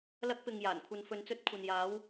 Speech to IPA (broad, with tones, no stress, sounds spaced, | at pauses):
l ɐ˧ k̚ p ɪ˨ ŋ j aː˨˩ n kʷʰ ɐ˨ n f ɵ˨ n t͡s ɵ˧ t̚ kʷʰ ɐ˨ n j aː˨˧ w